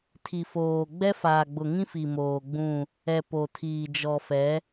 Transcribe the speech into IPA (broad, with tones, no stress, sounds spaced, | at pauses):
tʰ i˨ f oː˨ ɡ͡b ɛ˦ f aː˨ ɡ͡b ʊ˨ ŋ ĩ˦ f i˨ m oː˨ ɡ͡b ũ˦˨ | ɛ˨ p o˨ tʰ iː˨ d͡ʒ ɔ˨ f ɛ˨˦